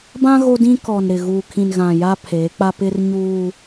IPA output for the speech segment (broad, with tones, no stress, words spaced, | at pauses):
bã˦ ɣo˦dĩ˦ kɔ˨n ɾɪ˨ ɣuː˨kʰĩ˨nɣã˨ ja˦pʰeː˨˦k͡pa˦ pɪ˦rɲuː˦